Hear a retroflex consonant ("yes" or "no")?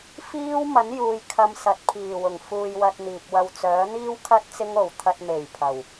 no